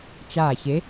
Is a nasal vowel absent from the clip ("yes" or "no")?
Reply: yes